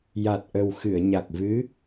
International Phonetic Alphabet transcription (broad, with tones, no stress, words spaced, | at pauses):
ja˨˩t̚ʔə˨˩w xɨ˨˩˨ə̯ɲa˨˩k̚ vɨ˧˥